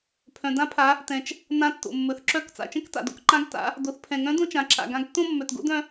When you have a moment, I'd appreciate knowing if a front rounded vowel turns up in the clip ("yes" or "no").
yes